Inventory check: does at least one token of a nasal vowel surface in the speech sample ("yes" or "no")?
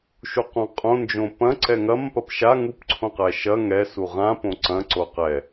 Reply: yes